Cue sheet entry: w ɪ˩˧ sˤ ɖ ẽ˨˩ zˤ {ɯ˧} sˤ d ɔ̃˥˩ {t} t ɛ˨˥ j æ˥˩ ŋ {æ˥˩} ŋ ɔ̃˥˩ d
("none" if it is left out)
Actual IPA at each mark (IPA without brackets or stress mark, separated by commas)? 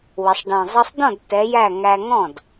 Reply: ɯ˧, d, æ˧